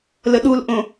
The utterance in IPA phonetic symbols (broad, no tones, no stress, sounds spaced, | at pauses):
l ə ɗ u l ʔ õ